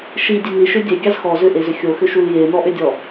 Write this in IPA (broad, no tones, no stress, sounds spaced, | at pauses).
ʃ i dʲ e n i ʃ ʏ dʲ e ɡʲ ɑ z x ɔ z ʏ ʔ e z ʏ xʲ o x ʏ ʃ u l j e n ɔ ʔ ʏ dʲ ɔ